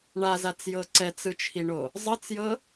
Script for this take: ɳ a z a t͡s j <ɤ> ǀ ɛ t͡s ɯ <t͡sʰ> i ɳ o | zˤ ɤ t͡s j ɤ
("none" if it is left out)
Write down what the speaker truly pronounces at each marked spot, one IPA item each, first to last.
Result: ɤ, t͡ʃʰ

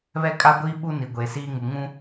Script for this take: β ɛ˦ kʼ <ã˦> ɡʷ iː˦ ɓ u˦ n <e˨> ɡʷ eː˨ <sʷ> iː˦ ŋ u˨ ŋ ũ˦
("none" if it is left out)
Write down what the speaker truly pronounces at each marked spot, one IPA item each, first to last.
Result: a˦, i˨, s

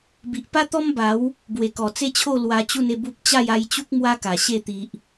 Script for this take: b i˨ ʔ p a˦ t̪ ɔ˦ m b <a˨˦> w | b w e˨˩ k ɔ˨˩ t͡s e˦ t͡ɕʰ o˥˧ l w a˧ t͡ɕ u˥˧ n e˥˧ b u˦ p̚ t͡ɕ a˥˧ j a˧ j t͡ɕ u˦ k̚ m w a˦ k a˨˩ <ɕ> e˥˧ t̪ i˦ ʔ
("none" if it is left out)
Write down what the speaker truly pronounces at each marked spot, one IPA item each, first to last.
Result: a˨˦, ɕ

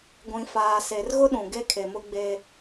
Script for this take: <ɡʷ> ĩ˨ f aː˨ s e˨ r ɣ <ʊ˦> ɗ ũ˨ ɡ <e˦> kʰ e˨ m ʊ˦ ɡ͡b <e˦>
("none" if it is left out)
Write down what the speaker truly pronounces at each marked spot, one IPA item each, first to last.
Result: ɡʷ, ʊ˦, e˦, e˦

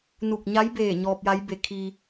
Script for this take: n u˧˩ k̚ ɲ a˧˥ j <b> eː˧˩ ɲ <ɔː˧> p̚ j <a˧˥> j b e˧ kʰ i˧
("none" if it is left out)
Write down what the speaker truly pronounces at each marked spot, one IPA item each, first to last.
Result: b, ɔː˧, a˧˥

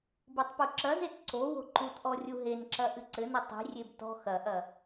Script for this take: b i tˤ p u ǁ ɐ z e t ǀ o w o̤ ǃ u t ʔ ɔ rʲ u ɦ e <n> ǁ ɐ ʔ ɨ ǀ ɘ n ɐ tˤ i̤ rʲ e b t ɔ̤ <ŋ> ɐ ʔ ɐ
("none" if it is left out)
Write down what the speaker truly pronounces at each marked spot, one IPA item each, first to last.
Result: n, x

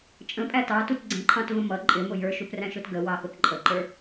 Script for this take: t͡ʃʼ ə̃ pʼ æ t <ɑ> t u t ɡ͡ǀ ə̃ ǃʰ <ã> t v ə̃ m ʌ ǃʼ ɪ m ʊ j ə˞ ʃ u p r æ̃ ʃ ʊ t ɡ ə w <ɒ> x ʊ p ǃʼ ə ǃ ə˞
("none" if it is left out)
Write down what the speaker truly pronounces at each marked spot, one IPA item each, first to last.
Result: ɑ, ɑ̃, ɑ

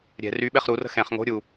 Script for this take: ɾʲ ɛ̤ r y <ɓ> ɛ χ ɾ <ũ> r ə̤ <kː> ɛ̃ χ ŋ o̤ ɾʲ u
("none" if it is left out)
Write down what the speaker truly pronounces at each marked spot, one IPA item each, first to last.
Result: ɓ, u, x

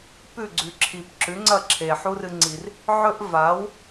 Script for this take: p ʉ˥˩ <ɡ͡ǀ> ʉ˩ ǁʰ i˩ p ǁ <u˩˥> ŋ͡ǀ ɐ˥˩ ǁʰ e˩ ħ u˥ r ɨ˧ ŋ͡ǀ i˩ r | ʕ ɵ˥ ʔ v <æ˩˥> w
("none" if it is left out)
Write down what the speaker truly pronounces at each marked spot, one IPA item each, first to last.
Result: ɡ͡ǀ, ʉ˩˥, a˩˥

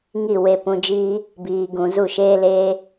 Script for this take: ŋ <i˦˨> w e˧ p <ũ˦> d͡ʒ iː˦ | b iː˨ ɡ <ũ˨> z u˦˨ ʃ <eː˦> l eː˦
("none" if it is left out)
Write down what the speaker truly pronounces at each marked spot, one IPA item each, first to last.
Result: i˦˨, ũ˧, ũ˨, eː˦

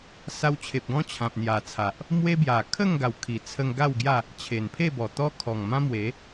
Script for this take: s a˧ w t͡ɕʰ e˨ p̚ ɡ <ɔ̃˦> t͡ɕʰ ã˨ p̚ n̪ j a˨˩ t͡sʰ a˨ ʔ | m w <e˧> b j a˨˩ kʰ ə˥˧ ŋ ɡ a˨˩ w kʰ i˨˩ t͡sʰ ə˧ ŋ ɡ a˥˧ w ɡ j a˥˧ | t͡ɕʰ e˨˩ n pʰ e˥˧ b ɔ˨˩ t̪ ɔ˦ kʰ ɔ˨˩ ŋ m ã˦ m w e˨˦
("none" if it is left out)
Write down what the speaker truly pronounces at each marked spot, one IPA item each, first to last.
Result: ɔ̃˦, e˦

